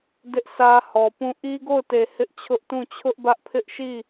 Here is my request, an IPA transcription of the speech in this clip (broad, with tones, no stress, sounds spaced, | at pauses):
d ɪ˦ ʔ sʰ ä˦ h ɔ˨ p ũ˦˨ ʔ i˦ ɡ o˦˨ ʊ̯ t e˨ h ɪ˦ ʔ t͡ɕʰ ʊ˦ ʔ t ũ˦˨ t͡ɕʰ ʊ˦ ʔ b ä˦ ʔ pʰ ɪ˦ ʔ ʃ i˦˨